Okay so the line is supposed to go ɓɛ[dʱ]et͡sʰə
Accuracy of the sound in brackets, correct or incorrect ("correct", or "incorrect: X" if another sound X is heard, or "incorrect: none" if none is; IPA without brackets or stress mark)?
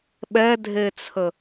correct